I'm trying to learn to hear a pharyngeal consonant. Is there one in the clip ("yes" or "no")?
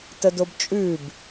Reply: no